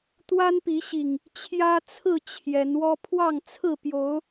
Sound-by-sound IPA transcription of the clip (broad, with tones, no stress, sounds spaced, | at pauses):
t̪ w a˦ n p i˨˦ ɕ i˨˩ ŋ | t͡ɕʰ j ä˦ t͡sʰ ɹ̩˥˨ t͡ɕʰ j ɛ˨˦ n w ɔ˦ pʰ w ɑ˥˨ ŋ t͡sʰ ɹ̩˥˨ p j o˨˦ ʊ̯